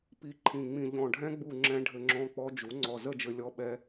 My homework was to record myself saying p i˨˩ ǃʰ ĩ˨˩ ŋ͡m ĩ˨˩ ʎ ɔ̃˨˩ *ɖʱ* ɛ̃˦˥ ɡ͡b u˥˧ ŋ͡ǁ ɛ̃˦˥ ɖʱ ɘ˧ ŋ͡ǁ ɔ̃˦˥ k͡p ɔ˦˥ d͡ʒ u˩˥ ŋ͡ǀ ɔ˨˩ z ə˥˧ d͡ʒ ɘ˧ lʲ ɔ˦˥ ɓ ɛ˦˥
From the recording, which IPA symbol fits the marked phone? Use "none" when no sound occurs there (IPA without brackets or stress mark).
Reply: ɖʱ